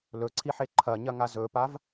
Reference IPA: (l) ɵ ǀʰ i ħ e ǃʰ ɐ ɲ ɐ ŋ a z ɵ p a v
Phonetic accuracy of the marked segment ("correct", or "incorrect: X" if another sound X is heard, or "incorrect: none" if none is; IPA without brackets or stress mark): correct